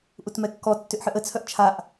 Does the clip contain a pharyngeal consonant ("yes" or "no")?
yes